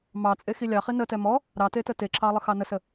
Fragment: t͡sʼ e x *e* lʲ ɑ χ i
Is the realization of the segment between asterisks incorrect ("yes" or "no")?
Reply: yes